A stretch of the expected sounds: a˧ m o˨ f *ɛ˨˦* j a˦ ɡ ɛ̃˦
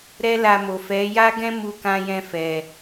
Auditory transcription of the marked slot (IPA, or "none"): ɛ˨˦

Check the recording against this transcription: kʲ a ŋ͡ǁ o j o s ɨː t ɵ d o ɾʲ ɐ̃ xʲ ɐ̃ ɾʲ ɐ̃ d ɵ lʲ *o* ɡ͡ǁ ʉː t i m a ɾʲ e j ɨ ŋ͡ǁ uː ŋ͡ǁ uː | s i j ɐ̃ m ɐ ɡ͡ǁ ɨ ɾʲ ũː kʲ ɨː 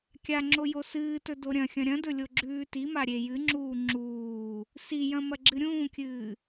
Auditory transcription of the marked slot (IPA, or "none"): o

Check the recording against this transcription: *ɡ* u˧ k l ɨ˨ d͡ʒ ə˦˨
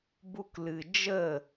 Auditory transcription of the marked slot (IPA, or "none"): b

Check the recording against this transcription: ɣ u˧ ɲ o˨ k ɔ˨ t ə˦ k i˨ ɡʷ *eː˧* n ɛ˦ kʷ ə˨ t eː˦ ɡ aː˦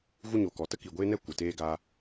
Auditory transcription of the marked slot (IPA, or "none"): eː˦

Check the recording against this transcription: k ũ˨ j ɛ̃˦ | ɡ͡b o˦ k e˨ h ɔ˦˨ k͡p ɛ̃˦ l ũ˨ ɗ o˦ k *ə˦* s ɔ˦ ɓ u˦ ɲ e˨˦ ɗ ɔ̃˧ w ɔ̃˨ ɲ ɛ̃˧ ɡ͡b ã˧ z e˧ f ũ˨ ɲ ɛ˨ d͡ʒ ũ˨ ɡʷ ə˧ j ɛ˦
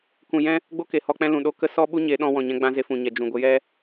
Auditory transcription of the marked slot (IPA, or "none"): ə˦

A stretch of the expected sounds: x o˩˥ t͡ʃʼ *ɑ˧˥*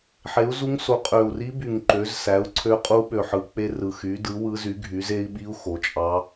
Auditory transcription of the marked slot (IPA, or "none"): ɑ˧˥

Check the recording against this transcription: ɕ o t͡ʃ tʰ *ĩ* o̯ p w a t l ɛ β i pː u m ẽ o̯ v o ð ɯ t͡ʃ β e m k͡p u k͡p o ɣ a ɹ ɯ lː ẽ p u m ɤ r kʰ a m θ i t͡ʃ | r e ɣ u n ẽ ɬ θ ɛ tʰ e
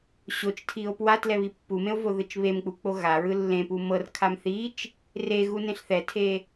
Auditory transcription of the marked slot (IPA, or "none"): i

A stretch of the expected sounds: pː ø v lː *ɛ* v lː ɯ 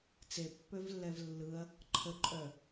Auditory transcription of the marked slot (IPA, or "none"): ɛ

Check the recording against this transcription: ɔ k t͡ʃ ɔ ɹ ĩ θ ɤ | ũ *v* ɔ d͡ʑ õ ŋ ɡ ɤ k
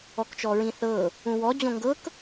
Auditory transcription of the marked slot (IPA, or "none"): w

